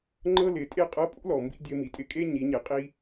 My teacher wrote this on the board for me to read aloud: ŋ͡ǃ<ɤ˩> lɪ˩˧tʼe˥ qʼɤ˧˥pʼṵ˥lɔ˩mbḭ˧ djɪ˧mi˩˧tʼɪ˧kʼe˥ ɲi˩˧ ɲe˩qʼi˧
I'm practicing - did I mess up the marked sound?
yes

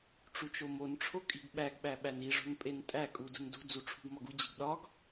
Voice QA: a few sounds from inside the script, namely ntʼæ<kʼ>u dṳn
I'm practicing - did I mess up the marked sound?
no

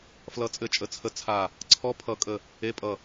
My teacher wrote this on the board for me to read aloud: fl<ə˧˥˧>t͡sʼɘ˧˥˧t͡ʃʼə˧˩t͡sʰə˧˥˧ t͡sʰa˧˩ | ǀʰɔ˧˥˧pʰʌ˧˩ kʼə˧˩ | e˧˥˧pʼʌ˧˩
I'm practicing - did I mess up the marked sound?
yes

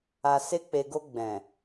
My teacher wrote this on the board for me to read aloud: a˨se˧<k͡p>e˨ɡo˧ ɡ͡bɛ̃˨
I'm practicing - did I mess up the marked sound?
no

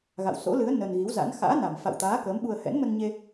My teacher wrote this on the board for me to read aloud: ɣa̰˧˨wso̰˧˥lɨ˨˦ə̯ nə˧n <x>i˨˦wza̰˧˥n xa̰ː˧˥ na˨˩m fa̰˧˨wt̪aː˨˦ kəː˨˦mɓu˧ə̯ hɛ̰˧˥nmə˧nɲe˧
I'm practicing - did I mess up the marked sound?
yes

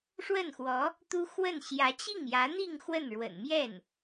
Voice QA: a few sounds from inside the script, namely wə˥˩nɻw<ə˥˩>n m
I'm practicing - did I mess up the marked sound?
yes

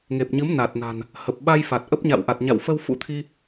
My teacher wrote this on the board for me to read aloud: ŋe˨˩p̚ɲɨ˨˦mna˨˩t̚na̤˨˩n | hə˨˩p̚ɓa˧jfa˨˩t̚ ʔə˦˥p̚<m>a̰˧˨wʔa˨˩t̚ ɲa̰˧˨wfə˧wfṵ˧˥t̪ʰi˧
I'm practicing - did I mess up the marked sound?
yes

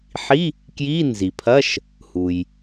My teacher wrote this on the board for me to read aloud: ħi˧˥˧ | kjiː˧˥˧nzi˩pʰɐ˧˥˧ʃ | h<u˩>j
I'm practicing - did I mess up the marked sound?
no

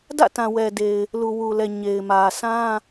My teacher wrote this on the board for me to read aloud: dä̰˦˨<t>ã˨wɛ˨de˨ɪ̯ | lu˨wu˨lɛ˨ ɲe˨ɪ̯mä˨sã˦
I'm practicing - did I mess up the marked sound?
no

